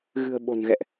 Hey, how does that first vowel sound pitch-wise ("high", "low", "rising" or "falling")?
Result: low